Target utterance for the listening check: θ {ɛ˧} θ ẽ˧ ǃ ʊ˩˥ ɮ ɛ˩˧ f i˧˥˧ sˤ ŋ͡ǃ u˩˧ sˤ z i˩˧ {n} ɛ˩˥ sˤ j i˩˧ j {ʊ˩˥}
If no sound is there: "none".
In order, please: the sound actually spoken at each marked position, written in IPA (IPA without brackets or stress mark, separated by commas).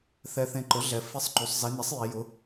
ɛ˧, n, ʊ˩˥